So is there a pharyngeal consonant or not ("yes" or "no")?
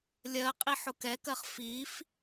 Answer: yes